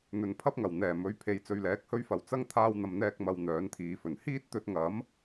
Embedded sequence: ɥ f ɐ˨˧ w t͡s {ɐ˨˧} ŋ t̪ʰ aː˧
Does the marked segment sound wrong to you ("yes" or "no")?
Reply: yes